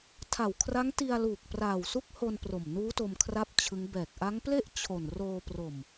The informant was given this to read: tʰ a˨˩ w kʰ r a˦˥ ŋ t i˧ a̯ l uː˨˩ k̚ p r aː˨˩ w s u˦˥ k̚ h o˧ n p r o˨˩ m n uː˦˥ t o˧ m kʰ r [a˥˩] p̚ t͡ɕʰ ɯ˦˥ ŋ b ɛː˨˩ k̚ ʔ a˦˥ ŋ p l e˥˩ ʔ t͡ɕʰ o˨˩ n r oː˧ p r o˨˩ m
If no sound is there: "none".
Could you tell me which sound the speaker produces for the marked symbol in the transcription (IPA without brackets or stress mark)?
a˥˩